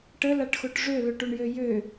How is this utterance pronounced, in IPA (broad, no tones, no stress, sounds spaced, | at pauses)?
ʈ ə l a ʈ x o ʈ ʐ ø l ø ʈ o ɳ j ø j ø